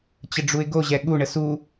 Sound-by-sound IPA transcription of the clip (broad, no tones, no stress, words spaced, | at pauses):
t͡ɕəɖ͡ʐuɪ̯ɡoʑɛ ɠuɳə su